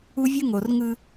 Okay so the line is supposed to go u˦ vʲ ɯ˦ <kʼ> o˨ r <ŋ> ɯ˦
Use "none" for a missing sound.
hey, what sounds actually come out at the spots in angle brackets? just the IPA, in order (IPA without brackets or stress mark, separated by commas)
ŋ, ŋ